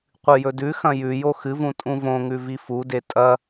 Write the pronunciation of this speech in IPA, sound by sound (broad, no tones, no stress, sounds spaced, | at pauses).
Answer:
qʷ ɨ j ɵ d ʉ x ɐ̃ j ʉ j o x ɨ v ũ tʼ ũ v õ ŋ ʉ v i f u d e tʼ ɐ